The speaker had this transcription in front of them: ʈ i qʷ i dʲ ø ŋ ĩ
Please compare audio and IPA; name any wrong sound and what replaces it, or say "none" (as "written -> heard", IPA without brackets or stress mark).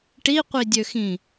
ŋ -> x